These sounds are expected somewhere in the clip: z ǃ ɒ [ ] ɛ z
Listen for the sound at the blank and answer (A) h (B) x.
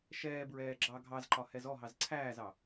A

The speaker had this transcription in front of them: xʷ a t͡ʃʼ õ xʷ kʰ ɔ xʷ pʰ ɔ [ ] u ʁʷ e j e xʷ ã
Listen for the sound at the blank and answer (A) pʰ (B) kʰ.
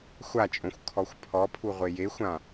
A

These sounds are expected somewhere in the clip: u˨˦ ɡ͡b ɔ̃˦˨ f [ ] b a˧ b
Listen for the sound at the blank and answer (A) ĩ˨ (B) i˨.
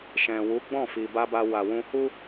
B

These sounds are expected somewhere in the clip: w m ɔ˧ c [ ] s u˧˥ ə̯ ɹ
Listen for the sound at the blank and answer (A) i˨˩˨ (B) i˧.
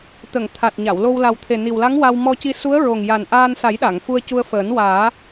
B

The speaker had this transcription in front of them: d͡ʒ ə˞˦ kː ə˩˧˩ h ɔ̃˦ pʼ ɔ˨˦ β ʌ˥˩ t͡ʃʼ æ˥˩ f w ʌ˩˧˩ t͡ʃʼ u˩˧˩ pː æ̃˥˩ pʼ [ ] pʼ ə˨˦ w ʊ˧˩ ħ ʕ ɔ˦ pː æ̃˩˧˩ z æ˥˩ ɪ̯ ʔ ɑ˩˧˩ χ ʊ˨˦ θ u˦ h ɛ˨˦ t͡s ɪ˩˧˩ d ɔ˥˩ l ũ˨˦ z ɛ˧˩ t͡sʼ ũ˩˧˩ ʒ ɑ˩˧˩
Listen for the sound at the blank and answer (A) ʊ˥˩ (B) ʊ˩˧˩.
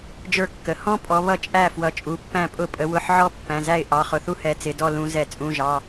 A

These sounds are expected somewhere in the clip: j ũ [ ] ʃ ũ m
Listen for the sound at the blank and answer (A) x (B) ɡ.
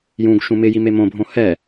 B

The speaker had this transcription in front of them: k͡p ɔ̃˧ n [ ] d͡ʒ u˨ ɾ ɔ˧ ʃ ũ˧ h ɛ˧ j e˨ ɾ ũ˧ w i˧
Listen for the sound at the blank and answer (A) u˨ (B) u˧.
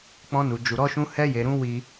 A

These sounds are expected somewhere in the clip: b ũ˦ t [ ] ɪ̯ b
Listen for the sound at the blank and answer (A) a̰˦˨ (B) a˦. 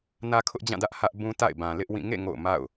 A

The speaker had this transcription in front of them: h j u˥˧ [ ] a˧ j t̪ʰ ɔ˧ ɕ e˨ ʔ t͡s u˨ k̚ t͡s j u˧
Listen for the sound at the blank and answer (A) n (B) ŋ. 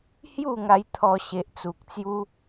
B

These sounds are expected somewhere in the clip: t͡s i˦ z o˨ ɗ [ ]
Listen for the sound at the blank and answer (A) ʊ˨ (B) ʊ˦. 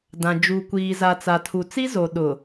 A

